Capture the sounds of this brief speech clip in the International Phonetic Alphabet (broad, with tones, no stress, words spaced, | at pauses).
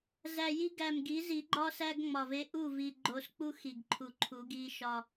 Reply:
zæ˨ji˦ ɡæ˨mɡi˨˦zi˨˦ɡ͡ǃɒ˦ sæ˦ɡŋ͡mɒ˨ve˦ ʔu˦˨vi˨ɡ͡ǃo˨sk͡pu˦x i˨ɡǃʰu˨ǃʰu˨˦ɡi˦ ʃɒ˦